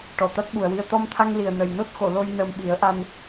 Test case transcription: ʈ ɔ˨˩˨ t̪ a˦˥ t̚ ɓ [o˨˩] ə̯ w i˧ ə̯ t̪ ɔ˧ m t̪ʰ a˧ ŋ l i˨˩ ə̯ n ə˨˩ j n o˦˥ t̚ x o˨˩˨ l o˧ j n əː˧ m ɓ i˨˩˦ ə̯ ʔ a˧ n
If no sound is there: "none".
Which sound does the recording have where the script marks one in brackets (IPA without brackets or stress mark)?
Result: u˨˩